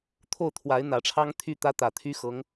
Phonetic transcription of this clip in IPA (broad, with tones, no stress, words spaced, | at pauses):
t̪ʰo˥˩ʊ̯ t̪ʰwa˧˥ɪ̯n̪ä˨˩ʈ͡ʂʰɑ˥ŋ t̪ʰy˥˩t̪ä˥ t̪ä˨˩t̪ʰy˥xɤ˧˥ŋ